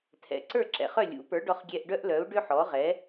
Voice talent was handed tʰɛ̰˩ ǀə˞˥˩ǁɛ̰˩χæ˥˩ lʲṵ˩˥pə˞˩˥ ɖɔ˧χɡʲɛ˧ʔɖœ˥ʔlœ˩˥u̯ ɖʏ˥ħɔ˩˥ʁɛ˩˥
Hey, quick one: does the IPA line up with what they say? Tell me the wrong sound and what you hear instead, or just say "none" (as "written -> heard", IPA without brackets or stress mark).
æ˥˩ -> œ˥˩